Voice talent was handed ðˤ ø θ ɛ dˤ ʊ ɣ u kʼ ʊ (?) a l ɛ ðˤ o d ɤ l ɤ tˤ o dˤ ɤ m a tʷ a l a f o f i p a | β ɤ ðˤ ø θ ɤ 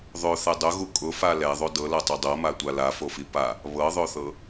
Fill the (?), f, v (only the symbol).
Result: f